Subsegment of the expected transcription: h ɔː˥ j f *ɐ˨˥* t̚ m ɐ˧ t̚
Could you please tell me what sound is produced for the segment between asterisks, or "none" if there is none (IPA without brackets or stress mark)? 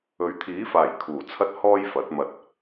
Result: ɐ˨˥